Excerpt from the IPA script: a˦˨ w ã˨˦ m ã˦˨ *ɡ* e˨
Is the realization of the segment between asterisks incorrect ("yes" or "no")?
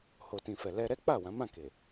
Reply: yes